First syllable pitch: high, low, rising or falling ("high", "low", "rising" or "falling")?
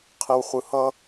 low